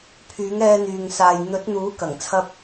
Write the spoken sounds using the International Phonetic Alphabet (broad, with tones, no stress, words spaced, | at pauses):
pʰyː˨˥ŋɛː˧n̪yː˨ŋ saː˨j n̪ɵ˨˥t̚ n̪uː˨˥kɐ˨˩ŋ t͡sʰɐ˧p̚